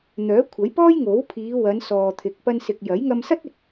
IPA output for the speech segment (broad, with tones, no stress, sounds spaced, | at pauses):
n̪ œː˨˥ kʷʰ ɐ˨˥ j p ɔː˥ j ŋ o˨˥ w pʰ iː˨˧ w ɐ˨˧ n s ɔː˨ t̪ʰ ɪ˨ k̚ p ɐ˧ n s ɪ˨ k̚ j ɐ˨˥ j ŋ ɐ˧ m s ɐ˥ t̚ ɪ˨ k̚